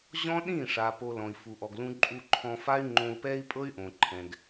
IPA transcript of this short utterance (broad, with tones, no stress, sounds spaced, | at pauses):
ʑ ɔ̃˦ ɗ ĩ˦˨ ʂ a˨ p o˧ l ɔ̃˨ i̯ f u˨ ʔ ɔ˨ ɡ l ũ˧ ǃʼ u˧ ǃʰ ɔ̃˧ f a˦ y̯ ŋ͡ǃ õ˧ u̯ p ɛ˦ i̯ pʼ ɤ˦ y̯ ʔ õ˨ ǃʰ ɛ̃˨ ɡ